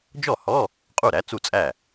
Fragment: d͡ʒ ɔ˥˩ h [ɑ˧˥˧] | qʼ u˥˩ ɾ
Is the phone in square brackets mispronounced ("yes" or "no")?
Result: yes